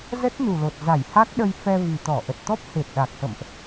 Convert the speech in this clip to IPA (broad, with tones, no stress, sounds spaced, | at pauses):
z ə˦˥ t̚ n u˨˩ l o˨˩ t̚ z a˧˩ j h a˦˥ k̚ ɗ ə˧ j f ɛ˧ v i˨˩ t̪ ɔ˧˩ ʔ ə˨˩ t̚ t̪ ɔ˦˥ p̚ h e˨˩ t̚ ɗ a˨˩ k̚ h ə̰˧˨ m ʔ